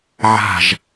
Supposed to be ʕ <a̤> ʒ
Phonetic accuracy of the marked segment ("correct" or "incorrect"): correct